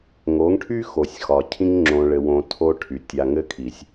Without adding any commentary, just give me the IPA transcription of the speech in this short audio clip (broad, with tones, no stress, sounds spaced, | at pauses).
ŋ o˨˦ ŋ ʈʰ y˦ x o˨ sʲ x ɒ˨ cʰ ĩ˦ ŋ ŋ͡ǁ õ˨ ɭ ɘ˨ w õ˨ tʰ o˦ ʈʰ y˨ tʲ a˨ ŋ ɘ˦ kʰ i˨ sʲ